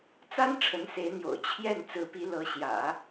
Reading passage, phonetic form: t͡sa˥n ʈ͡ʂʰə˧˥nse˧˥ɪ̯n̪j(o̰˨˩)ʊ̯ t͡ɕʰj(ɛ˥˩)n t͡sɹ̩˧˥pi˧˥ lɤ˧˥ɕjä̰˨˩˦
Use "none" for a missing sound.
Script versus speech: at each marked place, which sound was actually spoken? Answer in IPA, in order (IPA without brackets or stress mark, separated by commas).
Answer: o̰˨˩, ɛ˥˩